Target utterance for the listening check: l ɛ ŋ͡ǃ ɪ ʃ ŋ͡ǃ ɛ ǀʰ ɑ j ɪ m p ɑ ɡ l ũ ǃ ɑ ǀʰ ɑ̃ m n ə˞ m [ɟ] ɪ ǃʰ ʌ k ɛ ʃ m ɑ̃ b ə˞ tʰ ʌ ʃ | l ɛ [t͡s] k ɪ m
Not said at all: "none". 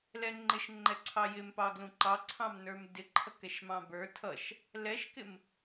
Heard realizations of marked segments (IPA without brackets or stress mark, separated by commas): d, ʃ